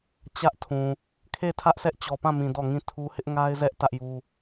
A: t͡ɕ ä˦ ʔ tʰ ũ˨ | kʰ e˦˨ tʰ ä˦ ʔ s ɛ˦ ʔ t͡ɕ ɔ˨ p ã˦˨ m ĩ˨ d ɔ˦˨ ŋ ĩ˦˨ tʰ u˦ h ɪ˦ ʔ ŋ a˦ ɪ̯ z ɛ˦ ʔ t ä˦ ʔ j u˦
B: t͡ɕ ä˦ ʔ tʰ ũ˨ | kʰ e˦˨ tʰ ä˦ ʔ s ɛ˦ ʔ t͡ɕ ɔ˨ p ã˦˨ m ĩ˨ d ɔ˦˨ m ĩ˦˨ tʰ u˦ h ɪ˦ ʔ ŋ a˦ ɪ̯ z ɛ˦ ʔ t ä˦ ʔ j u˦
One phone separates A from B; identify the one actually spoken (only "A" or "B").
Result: A